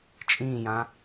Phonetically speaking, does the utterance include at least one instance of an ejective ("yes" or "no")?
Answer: yes